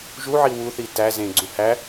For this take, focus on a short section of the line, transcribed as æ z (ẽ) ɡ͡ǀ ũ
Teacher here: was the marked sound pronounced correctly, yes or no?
yes